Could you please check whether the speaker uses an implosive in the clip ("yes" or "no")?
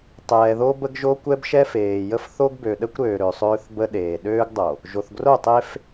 yes